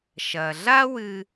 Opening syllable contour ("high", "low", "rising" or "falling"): low